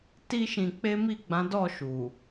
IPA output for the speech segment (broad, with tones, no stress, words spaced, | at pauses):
ti˦ʃĩ˧k͡pe˦ mi˦˨ɡ͡bã˨˦dɔ˦˨ ʃu˨